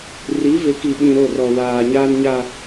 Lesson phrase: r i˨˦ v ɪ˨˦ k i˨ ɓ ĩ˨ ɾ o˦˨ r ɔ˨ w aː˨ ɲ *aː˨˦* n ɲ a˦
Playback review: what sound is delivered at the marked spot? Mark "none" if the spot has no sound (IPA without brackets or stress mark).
aː˦